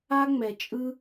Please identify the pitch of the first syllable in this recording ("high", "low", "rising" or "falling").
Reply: high